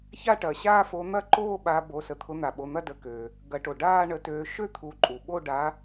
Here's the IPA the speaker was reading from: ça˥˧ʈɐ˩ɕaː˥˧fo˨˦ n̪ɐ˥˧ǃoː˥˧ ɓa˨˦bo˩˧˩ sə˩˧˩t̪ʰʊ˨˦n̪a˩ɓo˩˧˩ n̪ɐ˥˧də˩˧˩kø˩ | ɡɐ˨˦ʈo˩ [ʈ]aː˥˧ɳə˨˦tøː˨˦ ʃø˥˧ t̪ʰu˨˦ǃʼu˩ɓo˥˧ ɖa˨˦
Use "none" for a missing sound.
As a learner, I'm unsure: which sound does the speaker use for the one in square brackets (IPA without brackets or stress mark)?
ɖ